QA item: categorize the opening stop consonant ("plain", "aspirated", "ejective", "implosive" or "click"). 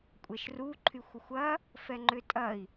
ejective